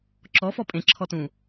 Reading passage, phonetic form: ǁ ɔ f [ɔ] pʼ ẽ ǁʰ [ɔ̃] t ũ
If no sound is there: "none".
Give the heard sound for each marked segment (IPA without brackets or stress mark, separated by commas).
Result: ɔ, ɔ